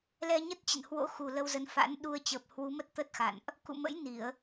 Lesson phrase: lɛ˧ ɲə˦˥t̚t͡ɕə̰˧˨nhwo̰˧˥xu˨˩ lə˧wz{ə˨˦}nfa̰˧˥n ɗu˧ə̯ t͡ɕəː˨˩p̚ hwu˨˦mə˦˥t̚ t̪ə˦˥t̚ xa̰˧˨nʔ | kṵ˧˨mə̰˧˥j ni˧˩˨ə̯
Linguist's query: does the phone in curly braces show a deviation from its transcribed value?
no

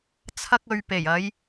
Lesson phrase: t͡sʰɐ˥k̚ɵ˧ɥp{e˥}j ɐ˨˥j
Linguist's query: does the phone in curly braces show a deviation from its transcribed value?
yes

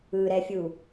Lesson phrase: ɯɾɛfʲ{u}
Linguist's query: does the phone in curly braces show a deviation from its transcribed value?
no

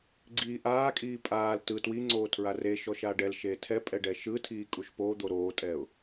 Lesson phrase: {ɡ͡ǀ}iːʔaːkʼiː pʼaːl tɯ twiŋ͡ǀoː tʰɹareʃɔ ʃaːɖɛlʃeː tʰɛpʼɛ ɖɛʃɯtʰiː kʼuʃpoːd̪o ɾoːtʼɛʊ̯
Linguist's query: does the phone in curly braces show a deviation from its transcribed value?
no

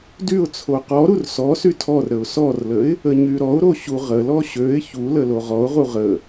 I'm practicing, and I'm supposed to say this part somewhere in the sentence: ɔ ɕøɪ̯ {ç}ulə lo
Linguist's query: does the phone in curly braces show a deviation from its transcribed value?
no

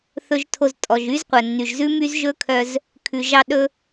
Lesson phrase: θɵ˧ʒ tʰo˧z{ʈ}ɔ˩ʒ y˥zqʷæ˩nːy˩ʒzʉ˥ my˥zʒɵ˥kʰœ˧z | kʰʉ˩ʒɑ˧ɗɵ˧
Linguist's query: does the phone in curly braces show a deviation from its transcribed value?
yes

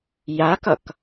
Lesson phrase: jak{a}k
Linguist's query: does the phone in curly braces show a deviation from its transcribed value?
yes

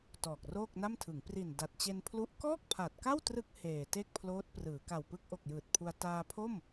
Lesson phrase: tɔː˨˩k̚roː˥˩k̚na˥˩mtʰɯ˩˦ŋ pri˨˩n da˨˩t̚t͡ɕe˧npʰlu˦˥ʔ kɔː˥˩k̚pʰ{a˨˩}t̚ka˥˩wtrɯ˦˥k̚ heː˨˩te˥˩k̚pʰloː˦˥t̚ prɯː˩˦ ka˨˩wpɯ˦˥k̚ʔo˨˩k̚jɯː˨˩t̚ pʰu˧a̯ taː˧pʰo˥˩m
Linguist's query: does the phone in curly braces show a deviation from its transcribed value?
no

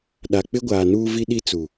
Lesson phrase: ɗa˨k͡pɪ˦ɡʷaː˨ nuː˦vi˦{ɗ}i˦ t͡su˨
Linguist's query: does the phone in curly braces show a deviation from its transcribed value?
no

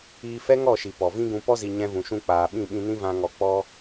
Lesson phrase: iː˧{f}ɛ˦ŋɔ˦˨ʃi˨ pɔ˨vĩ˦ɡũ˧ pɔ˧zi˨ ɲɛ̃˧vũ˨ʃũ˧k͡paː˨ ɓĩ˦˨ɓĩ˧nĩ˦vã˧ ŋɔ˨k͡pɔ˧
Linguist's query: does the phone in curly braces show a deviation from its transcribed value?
no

